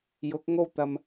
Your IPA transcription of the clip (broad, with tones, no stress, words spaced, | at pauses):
jʊ˨˥k̚ŋo˥wt̪ɐ˧m